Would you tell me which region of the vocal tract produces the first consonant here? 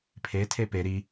lips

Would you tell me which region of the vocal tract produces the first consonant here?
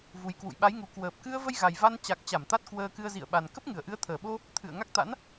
lips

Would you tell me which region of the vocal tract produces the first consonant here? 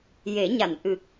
palate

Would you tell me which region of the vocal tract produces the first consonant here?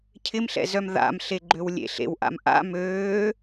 palate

